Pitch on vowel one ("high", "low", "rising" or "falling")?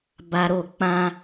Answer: high